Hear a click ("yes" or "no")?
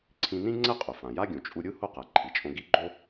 yes